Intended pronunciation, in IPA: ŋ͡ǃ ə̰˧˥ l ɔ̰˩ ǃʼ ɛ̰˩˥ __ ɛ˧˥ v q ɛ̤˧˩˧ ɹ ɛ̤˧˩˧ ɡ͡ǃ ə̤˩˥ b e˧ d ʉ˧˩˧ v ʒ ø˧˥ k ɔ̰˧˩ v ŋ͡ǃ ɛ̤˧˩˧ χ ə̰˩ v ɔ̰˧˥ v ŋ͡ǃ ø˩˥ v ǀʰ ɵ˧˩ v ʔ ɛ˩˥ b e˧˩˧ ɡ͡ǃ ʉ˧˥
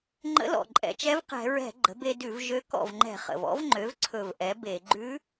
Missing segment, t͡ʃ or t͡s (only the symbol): t͡ʃ